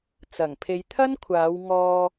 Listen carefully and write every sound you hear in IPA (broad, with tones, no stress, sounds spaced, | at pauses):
t͡s ɐ˨˩ ŋ pʰ e˨˧ j t̪ʰ ɐ˥ n kʷʰ aː˨˧ w ŋ ɔː˧